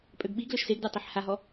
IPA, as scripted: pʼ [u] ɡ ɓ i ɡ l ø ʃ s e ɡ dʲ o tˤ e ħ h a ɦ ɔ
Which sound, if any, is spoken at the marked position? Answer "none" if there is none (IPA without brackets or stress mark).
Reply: ø